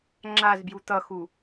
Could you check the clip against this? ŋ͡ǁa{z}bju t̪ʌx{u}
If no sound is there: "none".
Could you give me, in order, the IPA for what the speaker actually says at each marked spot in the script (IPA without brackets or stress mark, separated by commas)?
z, u